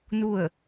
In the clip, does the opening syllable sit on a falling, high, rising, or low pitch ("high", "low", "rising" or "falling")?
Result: falling